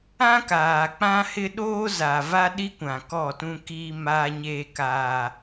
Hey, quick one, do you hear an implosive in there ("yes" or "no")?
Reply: yes